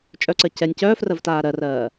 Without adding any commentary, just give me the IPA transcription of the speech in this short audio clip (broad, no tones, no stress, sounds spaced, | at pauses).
t͡ʃʼ œ ǀ ɜ c ɛ nʲ c œː f r ɜ v t aː ɾ ɜ r ɜː